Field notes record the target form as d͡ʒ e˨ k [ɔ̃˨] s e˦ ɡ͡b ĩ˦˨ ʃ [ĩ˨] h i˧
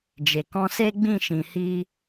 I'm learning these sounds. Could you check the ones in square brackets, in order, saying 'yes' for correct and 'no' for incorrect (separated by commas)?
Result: no, yes